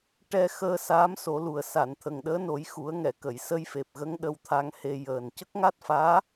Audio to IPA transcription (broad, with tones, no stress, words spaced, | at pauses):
ʈɛ˧xəː˧ saː˧˥mso˨˩˦lu˨˩ə̯ sa˨˩˨nt̪ʰə˨˩ŋɗəː˧˥no˨˩˦j xu˨˩˦ə̯ŋɛ˨˩˨kə˨˩˨j sə˧jfe˨˩p̚ɣə˧˥ŋ ɗə˧wt̪ʰa˧ŋhe˧ jəː˨˩n cə˦˥k̚ŋa˦˥t̚faː˧˥